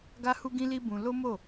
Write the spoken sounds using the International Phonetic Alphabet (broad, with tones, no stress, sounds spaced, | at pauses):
ɡ a˦ h u˦ ɡ ĩ˦ l i˦ b ũ˧ l o˦ m o˦˨